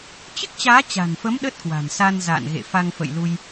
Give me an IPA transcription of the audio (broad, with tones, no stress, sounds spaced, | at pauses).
t͡ɕ ɨ˦˥ k̚ t͡ɕ aː˨˦ t͡ɕ a̤˨˩ n f ə˨˦ m ɗ ə˦˥ t̚ k w a̤˨˩ n s a˧ n z a̰ː˧˨ n ɣ ḛ˧˨ f a˧ ŋ f ə̰˧˨ j l u˧ j